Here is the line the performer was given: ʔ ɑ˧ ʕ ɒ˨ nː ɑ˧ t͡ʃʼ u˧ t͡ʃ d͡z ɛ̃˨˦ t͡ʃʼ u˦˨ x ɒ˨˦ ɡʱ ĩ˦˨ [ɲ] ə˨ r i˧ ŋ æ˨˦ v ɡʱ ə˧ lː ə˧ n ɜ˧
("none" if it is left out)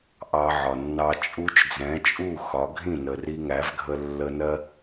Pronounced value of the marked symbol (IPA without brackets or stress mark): n